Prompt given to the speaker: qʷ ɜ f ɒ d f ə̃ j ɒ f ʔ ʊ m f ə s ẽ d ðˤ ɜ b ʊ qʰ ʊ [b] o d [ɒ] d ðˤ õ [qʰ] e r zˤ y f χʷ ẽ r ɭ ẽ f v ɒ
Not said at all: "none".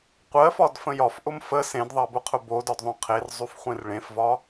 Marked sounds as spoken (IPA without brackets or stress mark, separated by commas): b, ɒ, qʰ